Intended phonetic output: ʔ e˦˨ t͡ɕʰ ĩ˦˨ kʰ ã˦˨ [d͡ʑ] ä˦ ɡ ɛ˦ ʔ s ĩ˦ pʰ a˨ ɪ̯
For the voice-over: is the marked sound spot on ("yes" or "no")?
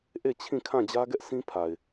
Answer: yes